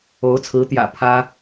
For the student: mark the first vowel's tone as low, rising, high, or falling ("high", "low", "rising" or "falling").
rising